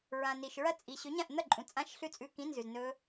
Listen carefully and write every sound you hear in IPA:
ɹ ã˨ n i˨ ʃ ɹ ɐ˦˥ t͡sʼ i˨ ɕ ɵ˨˥ ɲ ã˥˩ ʔ n̪ ɐ˥˩ ǃʼ ũ˨ t͡sʼ ã˦˥ ʃ ɬ ʉ˥˩ t͡sʼ ʉ˧˥˧ k ĩ˧˥˧ n z ʉ˨ z n ɵ˦˥

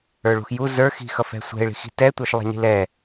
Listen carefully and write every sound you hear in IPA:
ə˞ ɭ ṳ x j u z ə˞ x i̤ x ʌ f ɛ̤ sʷ ɛ̤ ɪ̯ ɭ i̤ x i̤ t ɛ tʷ ə˞ ʃ lˠ ɛ̤ ɲ i̤ l ɛ

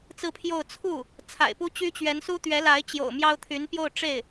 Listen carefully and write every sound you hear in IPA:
t͡s ɹ̩˥˧ pʰ j o˥˧ ʊ̯ t͡sʰ u˥˩ | t͡sʰ a̰˨˩ ɪ̯ p u˥ t͡ɕ y˥ t͡ɕ ɥ ɛ˧˥ n s u˥ t̪ ɥ ɛ˧˥ l a˧˥ ɪ̯ t͡ɕ j o̰˨˩ ʊ̯ m j ɑ˥ ʊ̯ t̪ʰ y˧˥ n p j o˥˧ ʊ̯ ʈ͡ʂ e˥˩ ɪ̯

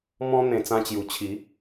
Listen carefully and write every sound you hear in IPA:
m ɔ̃˦ n̪ ẽ˧ t͡s ã˦ t͡ɕ j u˧ t͡ɕʰ i˨˦

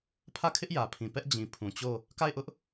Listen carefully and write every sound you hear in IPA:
pʰ ä˦˨ kʰ ɪ˦ ʔ j ä˨ pʰ ĩ˨ p ɛ˦ ʔ d͡ʑ ĩ˨ pʰ ũ˨ t͡ɕ o˦˨ | k a˦˨ ɪ̯ ʔ ʊ˦ ʔ

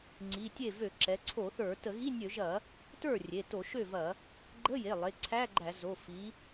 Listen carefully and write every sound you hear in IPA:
ŋ͡ǀ i˩˧˩ tʲ e˥˩ v ø˧˩˧ ǁ ɛ˩˧ ǀʰ o˧˩˧ θ ə˞˧˩˧ t ə˧˩˧ ɣ i˧˥˧ nʲ ø˧˩˧ ʒ ɐ˧˩˧ | t ə˞˥˩ rʲ e˩˧˩ t o˧˩˧ ʃ ø˥˩ v ɐ˧˩˧ | ɡ͡ǃ ə˧˥˧ j e˩˧˩ lˠ e˩˧˩ ǀʰ æ˧˥˧ ɡ͡ǃ æ˧˩˧ z o˩˧˩ f i˩˧

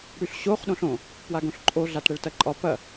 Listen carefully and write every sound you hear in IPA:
ɽ y ɬ ɕ o χ ɗ õ ɬ õ | p w a ɡ õ ɬ ǃʼ o ɮ a t ɽ ɛ ɭ t ɐ ǃʼ ɒ p ɐ

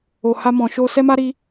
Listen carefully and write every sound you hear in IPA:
o˨ h a˧ m ɔ̃˨ ʃ o˧ s ɛ˦ m a˦ ɾ i˧

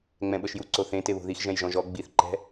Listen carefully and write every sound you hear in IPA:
ŋ͡m ɛ̃ ɓ ɤ ʃ j u ǀ o θ ẽ t e β o̤ ð i x ʒ ɛ̃ j ʒ ɔ̃ ʒ ɔ ɡ͡b i θ ǃ ɛ̤

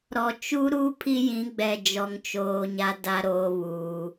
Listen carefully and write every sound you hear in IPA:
ɾ ɔ˨ t͡ʃ u˦ ɾ u˦ pʰ i˦ j ĩ˨˦ ɡ͡b ɛ˨ d͡ʒ ɔ˦ ŋ t͡ʃ oː˦ ɲ a˦ d a˦ ɾ oː˦ β uː˦

